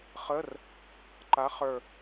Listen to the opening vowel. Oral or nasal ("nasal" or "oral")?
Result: oral